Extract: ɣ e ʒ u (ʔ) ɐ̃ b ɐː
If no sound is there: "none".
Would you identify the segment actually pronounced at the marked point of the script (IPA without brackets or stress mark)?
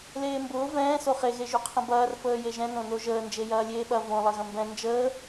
qʰ